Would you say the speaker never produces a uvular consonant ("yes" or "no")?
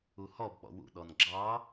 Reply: yes